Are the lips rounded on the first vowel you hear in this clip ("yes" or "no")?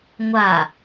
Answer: no